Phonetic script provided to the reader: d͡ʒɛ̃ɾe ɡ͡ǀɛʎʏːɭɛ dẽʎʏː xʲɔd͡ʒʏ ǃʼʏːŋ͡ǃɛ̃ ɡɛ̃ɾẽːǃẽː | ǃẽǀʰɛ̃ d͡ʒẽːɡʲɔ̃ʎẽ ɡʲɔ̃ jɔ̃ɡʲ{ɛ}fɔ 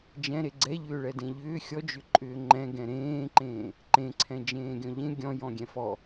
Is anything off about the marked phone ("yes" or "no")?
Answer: yes